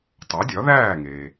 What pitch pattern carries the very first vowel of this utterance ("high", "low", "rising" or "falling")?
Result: rising